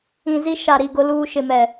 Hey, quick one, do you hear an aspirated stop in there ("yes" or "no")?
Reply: no